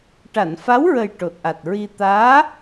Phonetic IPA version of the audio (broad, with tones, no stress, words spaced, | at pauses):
ʈa˨˩˨nfa˧˥wɹə˨˩j ʈo˨˩t̚ʔa˨˩t̚ɹi˧ t̪aː˧˥